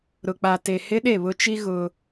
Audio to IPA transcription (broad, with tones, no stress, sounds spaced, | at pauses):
ɾ ʊ˨ k͡p a˨ t e˨ h ɪ˦ ɗ e˦˨ β ʊ˦ t͡ʃ i˦ ɣ ʊ˦